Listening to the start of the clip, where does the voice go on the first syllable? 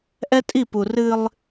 high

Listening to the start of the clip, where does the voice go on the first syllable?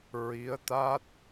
rising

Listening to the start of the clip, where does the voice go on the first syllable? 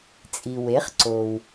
low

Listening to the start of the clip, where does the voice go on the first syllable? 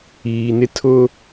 low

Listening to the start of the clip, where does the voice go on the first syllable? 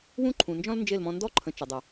high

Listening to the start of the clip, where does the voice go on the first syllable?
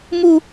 high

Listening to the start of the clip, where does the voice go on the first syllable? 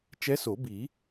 rising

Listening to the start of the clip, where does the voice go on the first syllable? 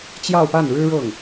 falling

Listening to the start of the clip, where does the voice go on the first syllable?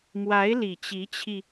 rising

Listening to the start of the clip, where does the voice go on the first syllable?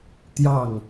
falling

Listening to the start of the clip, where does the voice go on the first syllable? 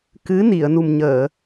rising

